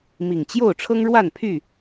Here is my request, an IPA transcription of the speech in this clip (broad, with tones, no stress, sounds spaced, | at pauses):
m i˨˩ ŋ t͡ɕ j o˥˨ ʊ̯ ʈ͡ʂʰ ɤ˦ ŋ ɻ w a˥˨ n pʰ y˥˨